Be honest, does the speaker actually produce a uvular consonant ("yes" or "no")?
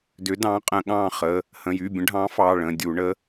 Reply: yes